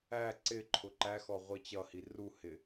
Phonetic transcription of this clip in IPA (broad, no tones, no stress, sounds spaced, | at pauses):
æ ǀ ɪ ǃʰ ʊ ǃ æ x ɔ ʁʷ i t͡ɕ ʌ h i r u h ɪ